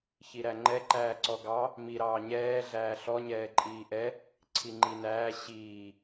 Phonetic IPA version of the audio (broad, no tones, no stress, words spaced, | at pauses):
çiɾæŋ͡ǃɛ ǃæːǀɔɡɑ | mi ɾɑːɲɛː ɮæːɬɔ ɲɛːǃʼiːʔɛ | ǀʰiŋ͡ǃinæː ɕiː